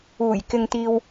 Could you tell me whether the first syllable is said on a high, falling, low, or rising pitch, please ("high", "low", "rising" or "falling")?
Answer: low